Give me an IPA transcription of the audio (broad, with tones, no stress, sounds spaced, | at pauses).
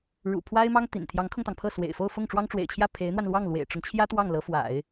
ɻ ṵ˨˩ pʰ w a˥ ɪ̯ m ɑ˥ ŋ t̪ ḭ˨˩ n t̪ʰ j ɑ˧˥ ŋ kʰ ʊ˧ ŋ t̪ ɑ˩ ŋ pʰ ɤ˥˩ s w ḛ˨˩ ɪ̯ f o˥˧ ʊ̯ f ʊ˥˩ ŋ ʈ͡ʂ w ɑ˥ ŋ ʈ͡ʂ w ḛ˨˩ ɪ̯ t͡ɕʰ j ä˥˩ pʰ e˧˥ ɪ̯ n̪ w a˧ n l w ɑ˥˩ ŋ l w ḛ˨˩ ɪ̯ ʈ͡ʂ ʊ˦ ŋ t͡ɕʰ j ä˥ t̪ w ɑ˥˩ ŋ l ɤ˧˥ f w a̰˨˩˦ ɪ̯